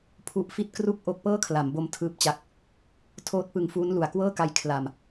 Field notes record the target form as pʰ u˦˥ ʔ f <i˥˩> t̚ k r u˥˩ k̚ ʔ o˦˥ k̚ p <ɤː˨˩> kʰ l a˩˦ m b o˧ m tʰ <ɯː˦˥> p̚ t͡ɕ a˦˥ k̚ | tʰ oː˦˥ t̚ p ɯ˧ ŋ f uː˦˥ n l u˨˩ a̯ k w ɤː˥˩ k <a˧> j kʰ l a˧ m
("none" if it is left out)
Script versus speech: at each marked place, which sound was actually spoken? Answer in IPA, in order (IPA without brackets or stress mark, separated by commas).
i˥˩, ɤː˥˩, ɯː˦˥, a˧